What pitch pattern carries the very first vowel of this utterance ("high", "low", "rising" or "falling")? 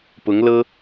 rising